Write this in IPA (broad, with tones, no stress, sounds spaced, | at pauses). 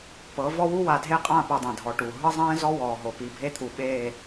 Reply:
p ɤ˨˦ v ɔ˦ w u˦ w a˨ dʱ e˦ qʼ ã˦˨ p u˨ dˤ ɛ̃˨ dʱ ɔ˨ ʈ u˨ ɦ ɯ˦ zˤ ɛ̃ː˦ z ɔ˦ w ɔː˨ ɦ o˨ p i˨ bʱ e˦ t̪ʰ u˨ ɓ eː˦˨